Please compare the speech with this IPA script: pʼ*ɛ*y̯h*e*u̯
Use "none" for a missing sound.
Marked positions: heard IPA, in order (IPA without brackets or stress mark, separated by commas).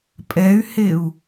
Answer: ɛ, e